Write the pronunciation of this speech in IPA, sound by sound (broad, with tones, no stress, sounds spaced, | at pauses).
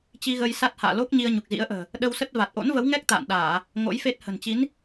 t͡ɕ i˧ ɣ ə˧ j s a˦˥ t̚ h a̰ː˧˨ l o˦˥ k̚ ɲ i˧ ə̯ ɲ u˨˩ k̚ z ḭ˧˥ ə̯ ʔ ə̤ː˨˩ | ɗ ə˧ w s ə˦˥ t̚ v a˨˩ t̚ ʔ o̰˧˥ n v ə˨˦ w ŋ ɛ˦˥ k̚ t̪ a̰ː˧˨ n ɗ aː˧˩˨ | ŋ o̰˧˥ j f e˦˥ t̚ h ə̤˨˩ n t͡ɕ i˨˦ n